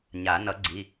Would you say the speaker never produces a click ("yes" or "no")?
no